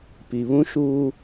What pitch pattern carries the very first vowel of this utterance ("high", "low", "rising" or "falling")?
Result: low